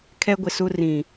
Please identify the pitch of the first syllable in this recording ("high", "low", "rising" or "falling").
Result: high